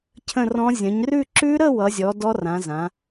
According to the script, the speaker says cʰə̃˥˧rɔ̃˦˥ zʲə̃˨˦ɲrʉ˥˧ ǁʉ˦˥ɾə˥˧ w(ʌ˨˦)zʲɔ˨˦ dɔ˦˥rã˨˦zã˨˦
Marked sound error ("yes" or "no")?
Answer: no